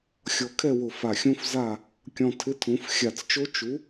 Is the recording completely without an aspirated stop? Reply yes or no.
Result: no